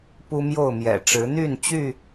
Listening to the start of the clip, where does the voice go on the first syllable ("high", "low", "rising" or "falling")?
high